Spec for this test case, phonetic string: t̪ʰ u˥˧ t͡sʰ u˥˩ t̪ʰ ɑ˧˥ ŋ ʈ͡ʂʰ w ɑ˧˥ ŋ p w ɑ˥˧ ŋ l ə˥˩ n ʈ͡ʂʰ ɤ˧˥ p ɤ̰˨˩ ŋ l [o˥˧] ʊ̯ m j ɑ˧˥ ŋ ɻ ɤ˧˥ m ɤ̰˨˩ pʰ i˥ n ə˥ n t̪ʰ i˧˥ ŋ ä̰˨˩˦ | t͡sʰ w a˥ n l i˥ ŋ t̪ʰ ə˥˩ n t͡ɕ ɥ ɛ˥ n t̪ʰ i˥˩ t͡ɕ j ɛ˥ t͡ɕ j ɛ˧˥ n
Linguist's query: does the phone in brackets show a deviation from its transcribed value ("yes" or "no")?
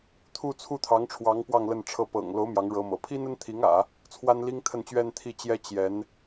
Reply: yes